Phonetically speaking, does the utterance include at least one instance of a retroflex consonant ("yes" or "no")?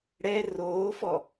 yes